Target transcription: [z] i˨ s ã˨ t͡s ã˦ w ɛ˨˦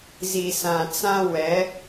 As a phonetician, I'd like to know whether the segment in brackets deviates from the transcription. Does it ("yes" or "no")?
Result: no